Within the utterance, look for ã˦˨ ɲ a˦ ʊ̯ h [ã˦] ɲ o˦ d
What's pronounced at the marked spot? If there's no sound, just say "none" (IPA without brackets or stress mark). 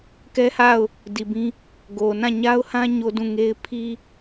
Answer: ã˦